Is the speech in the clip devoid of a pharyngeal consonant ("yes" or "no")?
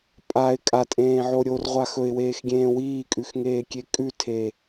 no